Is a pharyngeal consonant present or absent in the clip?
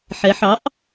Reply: present